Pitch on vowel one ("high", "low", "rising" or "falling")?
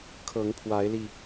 rising